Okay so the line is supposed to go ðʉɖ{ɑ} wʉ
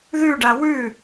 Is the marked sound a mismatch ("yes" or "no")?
yes